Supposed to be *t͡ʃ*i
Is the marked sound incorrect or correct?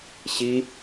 incorrect